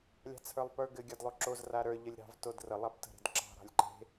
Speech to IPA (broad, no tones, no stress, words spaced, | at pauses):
lʲɑ̤t͡sʰə˞lˠpə˞ɡɘ ɡʲadlˠoǁoz raɾə˞ ʎəlʲɾɑ̤v todrə lˠaptə̤ɾe̤dǁɑ̤ ɾɑ̤lʲǃe̤